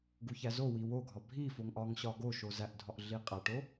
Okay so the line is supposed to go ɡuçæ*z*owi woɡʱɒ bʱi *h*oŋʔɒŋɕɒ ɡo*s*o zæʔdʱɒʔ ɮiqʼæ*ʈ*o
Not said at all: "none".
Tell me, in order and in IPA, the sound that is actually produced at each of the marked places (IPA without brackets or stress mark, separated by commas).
z, f, ʃ, ʈ